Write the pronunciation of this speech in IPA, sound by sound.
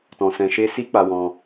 tɔ̃˧sɛ̃˧ʃe˦ si˦k͡pa˧wɔ̃˧

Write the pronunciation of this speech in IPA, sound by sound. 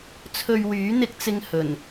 t͡sʰɵ˧ɥwyː˨˥n̪ɪ˧k̚t͡sɪ˧ŋ hɵ˨˩n

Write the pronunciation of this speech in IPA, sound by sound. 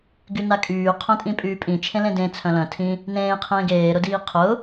ɡynakʼyː qʰœ̃tʼĩpʼyːpʼĩ t͡ʃʰẽlẽdẽ t͡sʰœ̃lœ̃ tʰĩ | nẽː qʰẽːɡeː ɾʊdiːqʰʊ

